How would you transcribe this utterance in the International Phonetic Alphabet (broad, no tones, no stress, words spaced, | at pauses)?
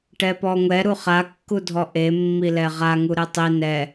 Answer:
ʈɛpɔŋʷɛ ɾuχakːudʱɔ ʔemːilɛ ʁaŋu ɾetˤi nɛ